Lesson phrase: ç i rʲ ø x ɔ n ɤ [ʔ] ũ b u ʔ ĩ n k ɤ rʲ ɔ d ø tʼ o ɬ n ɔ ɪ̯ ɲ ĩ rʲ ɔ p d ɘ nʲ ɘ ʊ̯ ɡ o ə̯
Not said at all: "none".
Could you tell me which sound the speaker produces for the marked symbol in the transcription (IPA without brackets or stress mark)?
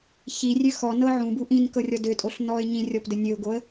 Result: ʕ